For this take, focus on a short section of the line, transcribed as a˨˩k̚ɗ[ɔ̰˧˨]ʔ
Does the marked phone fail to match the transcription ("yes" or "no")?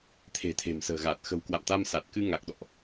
no